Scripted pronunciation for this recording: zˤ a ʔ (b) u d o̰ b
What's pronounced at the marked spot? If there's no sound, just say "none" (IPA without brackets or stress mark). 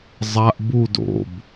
b